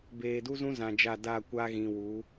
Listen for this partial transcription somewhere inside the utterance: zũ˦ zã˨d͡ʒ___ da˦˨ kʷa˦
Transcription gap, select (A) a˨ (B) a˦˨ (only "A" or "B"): B